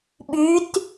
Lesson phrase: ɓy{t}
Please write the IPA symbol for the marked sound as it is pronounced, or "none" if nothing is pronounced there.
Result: t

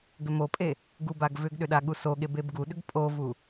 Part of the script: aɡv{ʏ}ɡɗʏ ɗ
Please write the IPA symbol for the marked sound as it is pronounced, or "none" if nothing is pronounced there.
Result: ʏ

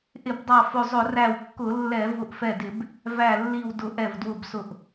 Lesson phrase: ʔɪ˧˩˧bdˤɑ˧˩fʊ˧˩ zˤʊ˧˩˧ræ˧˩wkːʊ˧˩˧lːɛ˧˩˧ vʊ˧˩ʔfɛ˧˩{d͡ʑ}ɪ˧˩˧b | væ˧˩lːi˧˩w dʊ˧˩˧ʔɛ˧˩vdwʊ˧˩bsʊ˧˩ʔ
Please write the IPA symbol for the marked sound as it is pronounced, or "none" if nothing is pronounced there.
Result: d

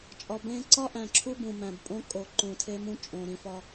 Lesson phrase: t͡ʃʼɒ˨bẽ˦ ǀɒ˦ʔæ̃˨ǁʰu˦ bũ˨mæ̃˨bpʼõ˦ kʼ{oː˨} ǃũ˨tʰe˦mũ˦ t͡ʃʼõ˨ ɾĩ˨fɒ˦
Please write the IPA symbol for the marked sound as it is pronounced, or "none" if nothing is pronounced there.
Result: o˨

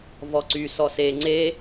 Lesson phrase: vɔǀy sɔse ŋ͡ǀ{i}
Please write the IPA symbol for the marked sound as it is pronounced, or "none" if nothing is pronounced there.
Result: e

